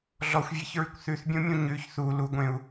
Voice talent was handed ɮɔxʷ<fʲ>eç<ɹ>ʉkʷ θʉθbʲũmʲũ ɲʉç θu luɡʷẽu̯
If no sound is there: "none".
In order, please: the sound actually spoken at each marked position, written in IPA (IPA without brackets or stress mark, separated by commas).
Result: vʲ, ɹ